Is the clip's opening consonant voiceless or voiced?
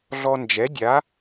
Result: voiced